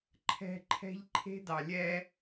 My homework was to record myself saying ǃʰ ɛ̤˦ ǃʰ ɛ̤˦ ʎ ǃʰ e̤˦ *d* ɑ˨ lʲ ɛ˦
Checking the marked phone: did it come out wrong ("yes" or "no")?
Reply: no